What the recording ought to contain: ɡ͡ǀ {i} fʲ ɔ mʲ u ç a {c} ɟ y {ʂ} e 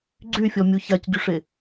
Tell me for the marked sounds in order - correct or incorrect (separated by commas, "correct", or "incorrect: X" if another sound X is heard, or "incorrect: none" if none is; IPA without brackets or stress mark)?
incorrect: y, correct, correct